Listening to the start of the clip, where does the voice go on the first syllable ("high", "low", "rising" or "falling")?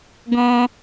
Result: high